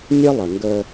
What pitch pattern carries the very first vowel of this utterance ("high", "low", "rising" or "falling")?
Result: high